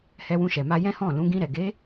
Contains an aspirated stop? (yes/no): no